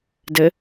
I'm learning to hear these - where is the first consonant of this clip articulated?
tongue tip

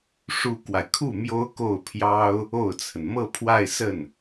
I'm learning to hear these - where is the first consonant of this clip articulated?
retroflex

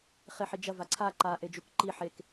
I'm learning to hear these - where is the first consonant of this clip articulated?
uvula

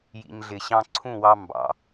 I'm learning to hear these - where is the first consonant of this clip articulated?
palate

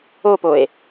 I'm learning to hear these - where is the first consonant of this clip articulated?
lips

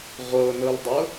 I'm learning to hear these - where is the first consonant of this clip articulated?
uvula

